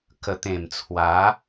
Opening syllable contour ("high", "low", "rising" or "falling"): low